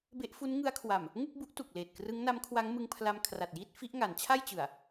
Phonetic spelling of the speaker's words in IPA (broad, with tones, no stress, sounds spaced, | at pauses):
b e˦˥ ʔ f u˦˥ n ŋ ɯ˦˥ a̯ kʰ w a˨˩ m | ŋ u˥˩ k̚ b u˦˥ ʔ t u˨˩ k̚ l eː˨˩ t̚ k r ɯ˦˥ ŋ n a˦˥ m kʰ w a˦˥ ŋ m ɯ˧ ŋ pʰ l a˧ m kʰ r a˨˩ t̚ j iː˥˩ t̚ f i˦˥ ʔ ŋ a˩˦ n t͡ɕʰ a˥˩ j t͡ɕ ɯ˨˩ a̯